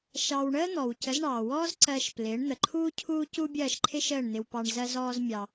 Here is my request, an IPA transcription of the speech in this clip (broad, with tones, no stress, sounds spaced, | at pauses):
ʃ ɑ˧ w ɳ əː˥ n̪ ɔ˩ w c ə˩˥ z ɳ ɑː˩ w ɔː˥ z ǀ ɜ˧ ʃ p l ɪː˩˥ ɳ n̪ ə˩ ǃʰ uː˥ cʰ uː˥ c u˥ bʲ ɜː˥˩ ʃ ǃʰ ɪ˥ ʃ əː˥˩ ɳ n̪ ɪ˧ w p ɑ˧ ɳ z ɜ˧ z ɔː˧ z mʲ ɑ˧